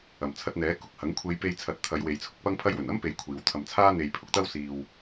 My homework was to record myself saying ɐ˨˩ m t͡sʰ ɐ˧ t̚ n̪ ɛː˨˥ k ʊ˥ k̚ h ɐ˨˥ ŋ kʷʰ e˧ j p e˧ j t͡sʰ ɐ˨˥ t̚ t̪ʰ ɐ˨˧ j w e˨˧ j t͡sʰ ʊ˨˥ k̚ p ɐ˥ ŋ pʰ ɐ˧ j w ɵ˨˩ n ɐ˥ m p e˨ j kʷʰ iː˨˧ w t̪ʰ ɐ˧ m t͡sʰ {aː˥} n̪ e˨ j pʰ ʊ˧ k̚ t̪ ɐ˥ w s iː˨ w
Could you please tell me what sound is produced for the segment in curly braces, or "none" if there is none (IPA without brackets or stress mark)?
aː˥